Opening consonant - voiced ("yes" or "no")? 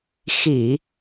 no